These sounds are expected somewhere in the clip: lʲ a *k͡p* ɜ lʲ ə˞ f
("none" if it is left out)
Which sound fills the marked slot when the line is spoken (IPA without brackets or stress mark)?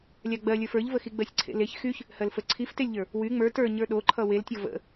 ɡ͡b